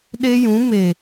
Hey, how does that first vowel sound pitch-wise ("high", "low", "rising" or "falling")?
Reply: high